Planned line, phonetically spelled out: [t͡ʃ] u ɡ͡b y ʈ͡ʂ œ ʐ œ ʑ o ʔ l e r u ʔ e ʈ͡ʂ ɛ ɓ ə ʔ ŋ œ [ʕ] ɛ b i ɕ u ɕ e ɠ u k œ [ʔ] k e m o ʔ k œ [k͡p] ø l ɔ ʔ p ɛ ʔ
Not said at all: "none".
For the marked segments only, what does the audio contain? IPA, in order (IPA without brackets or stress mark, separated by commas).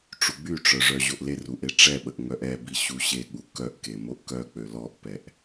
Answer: ʈ͡ʂ, ʔ, ʔ, k͡p